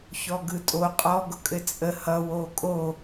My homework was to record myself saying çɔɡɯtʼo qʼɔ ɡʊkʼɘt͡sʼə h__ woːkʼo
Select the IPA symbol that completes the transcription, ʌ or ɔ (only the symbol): ʌ